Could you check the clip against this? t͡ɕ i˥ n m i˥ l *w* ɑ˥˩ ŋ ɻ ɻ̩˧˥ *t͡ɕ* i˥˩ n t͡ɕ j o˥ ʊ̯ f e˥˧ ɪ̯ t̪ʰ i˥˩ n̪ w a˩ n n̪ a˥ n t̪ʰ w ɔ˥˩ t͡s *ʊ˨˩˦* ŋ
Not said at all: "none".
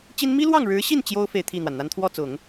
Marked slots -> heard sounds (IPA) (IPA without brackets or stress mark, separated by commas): w, ɕ, ʊ˨˩˦